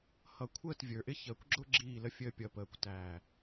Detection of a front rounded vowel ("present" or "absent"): absent